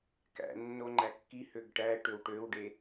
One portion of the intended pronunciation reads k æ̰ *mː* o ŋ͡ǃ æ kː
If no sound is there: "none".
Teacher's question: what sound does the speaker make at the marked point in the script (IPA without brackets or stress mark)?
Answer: nː